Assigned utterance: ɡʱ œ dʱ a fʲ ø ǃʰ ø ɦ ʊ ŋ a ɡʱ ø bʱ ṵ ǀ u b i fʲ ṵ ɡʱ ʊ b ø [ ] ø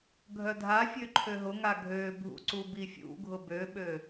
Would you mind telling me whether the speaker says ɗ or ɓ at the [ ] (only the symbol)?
ɓ